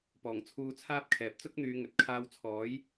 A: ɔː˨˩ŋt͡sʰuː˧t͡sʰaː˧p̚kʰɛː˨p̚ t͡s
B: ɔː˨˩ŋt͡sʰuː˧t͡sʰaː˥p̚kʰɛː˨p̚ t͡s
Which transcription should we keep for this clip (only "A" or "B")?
B